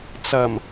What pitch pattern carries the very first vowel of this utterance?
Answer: low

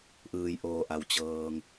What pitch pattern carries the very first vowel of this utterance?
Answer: low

